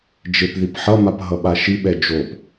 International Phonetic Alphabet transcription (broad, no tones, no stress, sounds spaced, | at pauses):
d͡ʒ e p ð i p ħ ʌ m a p ɦ ʌ ɓ a ʃ i ɓ ɛ d͡ʒ o p